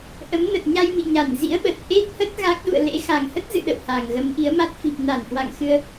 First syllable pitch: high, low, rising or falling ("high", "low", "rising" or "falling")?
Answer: rising